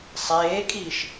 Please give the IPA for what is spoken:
sˤeːkʼiʃ

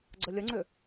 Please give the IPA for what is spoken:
ɡ͡ǀəlʲəŋ͡ǀʏ

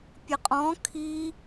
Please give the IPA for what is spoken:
pʲəqʼɔ̃ kʰi

